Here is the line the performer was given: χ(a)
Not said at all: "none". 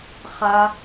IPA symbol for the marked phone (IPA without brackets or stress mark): a